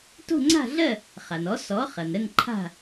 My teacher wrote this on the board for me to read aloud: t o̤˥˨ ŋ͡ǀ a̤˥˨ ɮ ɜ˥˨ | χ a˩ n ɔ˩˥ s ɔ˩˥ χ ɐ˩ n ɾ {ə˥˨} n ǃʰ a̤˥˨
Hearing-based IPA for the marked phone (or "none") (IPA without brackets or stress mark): ə˥˨